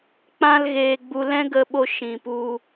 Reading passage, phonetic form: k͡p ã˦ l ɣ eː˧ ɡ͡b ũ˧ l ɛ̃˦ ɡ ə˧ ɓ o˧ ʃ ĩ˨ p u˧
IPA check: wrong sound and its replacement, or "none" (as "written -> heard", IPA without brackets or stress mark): ũ˧ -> u˧